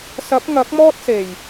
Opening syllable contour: rising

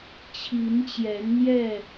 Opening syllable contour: rising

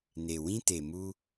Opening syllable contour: low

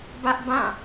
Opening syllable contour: high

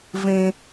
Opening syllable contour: high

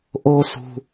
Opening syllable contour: high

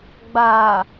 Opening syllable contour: low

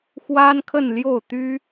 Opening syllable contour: high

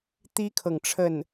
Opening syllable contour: high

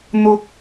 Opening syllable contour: low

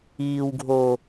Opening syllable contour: high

